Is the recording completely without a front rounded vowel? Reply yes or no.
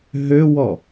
no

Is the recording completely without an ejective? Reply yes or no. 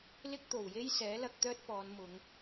yes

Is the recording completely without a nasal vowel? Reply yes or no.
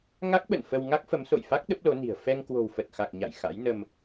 yes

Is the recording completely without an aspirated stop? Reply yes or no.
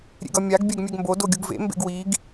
yes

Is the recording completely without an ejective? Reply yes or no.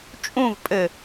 no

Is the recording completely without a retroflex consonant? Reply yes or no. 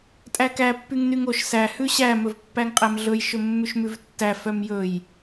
yes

